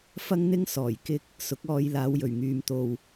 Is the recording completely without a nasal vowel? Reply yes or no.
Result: yes